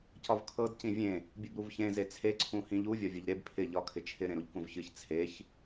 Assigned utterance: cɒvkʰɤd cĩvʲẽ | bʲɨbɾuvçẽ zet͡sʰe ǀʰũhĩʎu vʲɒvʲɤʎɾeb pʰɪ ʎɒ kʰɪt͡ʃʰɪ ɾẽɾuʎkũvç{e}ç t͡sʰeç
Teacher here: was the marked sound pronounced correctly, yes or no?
no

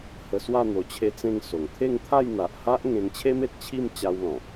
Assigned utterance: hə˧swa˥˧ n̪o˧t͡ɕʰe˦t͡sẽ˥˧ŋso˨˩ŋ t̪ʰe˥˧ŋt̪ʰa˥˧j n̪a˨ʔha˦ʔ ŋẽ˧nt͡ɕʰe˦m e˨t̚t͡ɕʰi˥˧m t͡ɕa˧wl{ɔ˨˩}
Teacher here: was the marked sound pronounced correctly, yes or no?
no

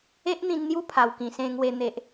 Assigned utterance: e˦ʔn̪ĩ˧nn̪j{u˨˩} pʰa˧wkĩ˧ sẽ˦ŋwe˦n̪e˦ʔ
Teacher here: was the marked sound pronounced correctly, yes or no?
no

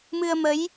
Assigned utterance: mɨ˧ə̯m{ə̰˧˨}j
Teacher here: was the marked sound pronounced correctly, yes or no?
no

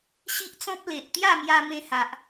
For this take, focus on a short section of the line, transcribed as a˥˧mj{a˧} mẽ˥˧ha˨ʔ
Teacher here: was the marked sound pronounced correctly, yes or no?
yes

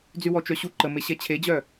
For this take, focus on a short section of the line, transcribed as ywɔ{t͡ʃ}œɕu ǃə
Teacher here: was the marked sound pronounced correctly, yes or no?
yes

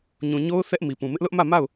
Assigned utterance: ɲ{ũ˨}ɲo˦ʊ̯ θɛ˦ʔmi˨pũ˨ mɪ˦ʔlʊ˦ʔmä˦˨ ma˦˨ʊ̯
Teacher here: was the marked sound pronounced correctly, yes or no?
yes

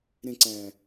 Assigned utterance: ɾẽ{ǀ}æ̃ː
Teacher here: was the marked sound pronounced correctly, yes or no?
yes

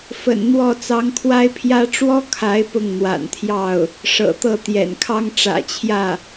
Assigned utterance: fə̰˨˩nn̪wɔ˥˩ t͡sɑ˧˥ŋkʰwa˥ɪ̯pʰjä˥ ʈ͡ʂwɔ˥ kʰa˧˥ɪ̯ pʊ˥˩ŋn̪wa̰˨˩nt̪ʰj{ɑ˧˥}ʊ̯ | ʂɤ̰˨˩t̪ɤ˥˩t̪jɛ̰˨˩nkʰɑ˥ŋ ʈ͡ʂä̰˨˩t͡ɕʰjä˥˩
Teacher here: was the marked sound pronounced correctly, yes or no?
no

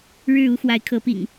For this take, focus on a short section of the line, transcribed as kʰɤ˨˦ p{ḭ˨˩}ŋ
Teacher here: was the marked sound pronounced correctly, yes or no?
yes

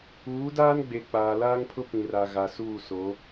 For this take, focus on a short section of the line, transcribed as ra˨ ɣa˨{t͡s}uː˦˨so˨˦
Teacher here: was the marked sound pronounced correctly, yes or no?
no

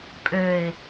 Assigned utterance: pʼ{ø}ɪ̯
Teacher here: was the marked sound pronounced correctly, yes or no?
yes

